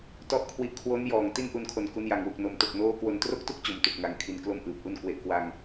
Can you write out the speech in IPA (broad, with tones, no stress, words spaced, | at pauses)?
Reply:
tɔ˥˩ʔkʰwi˦˥ʔ kʰwo˦˥njɔː˨˩ŋ ti˥˩nʔu˧nkʰo˨˩n ku˦˥nja˧ŋwu˨˩k̚ no˩˦m to˨˩k̚noː˦˥kwo˧n tro˥˩k̚tu˥˩k̚t͡ɕo˩˦m tu˨˩k̚ŋa˧ŋ kʰi˧nklo˥˩mʔɯː˨˩p̚ʔu˥˩n kwe˨˩ʔkwa˧ŋ